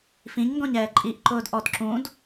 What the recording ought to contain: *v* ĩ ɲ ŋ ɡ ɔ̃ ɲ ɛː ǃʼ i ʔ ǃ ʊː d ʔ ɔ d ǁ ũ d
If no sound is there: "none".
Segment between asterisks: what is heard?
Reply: f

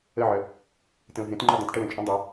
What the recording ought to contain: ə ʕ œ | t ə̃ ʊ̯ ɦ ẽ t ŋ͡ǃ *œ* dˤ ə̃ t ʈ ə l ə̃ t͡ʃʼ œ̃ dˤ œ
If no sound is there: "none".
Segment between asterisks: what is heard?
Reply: œ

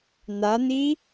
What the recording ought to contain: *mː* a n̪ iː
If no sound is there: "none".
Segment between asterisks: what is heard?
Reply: n̪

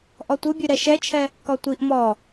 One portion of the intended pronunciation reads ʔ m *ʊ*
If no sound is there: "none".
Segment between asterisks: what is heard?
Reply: ɔ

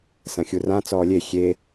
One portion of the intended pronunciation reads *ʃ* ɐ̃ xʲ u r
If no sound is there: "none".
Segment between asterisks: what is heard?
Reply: s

